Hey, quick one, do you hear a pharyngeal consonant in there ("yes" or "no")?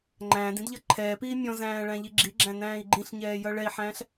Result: yes